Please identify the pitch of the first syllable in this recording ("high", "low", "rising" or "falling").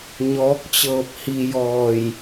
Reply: rising